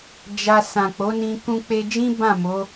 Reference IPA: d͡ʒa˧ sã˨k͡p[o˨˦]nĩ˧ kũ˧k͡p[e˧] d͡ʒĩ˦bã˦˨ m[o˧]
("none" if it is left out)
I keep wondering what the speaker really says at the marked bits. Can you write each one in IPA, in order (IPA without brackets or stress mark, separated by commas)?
o˨˦, e˧, o˨˦